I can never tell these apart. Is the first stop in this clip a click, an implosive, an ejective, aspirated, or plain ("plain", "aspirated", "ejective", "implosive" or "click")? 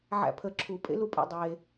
aspirated